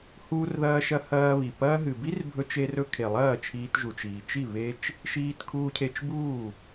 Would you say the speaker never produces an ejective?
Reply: yes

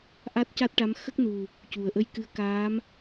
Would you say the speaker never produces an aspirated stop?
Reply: yes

